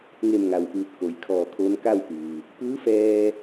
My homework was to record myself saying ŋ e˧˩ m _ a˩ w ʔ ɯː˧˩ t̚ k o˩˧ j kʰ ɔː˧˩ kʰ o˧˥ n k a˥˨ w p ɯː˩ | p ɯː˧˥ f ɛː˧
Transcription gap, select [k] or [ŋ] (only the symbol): ŋ